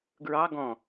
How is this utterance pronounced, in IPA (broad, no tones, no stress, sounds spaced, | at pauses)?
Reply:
ɡ ɹ ɑ ɡ ɔ̃